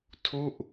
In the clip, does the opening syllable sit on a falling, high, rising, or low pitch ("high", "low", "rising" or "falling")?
falling